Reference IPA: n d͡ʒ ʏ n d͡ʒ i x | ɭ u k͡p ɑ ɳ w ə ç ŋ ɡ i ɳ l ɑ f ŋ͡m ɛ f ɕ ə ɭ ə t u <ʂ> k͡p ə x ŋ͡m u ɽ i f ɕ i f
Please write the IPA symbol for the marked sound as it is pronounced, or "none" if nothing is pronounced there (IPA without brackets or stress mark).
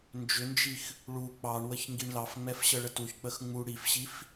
ç